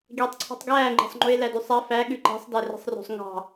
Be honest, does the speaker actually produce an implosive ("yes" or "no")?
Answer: yes